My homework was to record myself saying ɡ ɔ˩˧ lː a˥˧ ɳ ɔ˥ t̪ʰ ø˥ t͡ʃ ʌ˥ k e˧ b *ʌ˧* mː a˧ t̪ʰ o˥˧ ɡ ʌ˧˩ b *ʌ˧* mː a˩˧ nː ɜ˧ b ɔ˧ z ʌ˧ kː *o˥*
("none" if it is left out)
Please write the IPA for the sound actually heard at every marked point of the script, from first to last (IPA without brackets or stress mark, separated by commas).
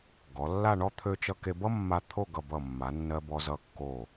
ʌ˥, ʌ˧˩, o˧˩